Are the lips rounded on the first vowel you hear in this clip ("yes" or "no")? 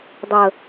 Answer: no